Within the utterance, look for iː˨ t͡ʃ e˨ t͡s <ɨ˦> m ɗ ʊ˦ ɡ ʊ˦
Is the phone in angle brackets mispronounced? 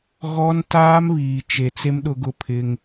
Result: yes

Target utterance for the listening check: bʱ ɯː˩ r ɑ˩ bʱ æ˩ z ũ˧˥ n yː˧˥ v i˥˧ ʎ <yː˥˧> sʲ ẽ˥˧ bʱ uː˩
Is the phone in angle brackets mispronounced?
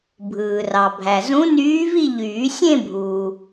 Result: yes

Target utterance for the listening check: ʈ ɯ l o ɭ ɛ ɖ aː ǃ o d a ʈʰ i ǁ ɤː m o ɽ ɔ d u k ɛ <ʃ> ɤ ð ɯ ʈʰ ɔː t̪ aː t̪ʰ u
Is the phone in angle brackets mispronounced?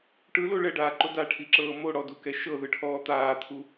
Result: no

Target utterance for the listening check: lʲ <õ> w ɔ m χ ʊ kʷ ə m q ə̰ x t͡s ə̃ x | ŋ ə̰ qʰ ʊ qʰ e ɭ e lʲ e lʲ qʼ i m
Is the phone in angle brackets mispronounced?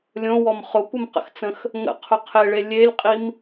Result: no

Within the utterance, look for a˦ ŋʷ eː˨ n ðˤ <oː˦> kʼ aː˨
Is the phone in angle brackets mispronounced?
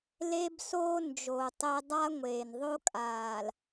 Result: yes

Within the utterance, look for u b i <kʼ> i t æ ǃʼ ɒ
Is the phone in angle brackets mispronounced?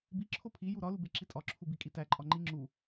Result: no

